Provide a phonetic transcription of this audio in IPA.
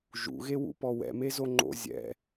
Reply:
ʒ ṵ ɣ e w ṵ p ɔ w ɛ̰ m e z o ŋ͡ǃ o̰ zʲ ɛ̰

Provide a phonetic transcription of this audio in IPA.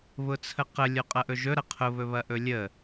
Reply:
β ʊ t͡sʰ ə q ə lʲ o qʼ ɐ ʔ ɵ ʒ ɵ ɾ ɐ qʰ ʊ β ɵ β ɐ ʔ ɵ lʲ ə

